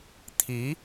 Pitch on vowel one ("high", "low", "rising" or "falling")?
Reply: rising